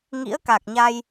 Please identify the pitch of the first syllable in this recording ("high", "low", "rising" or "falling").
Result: rising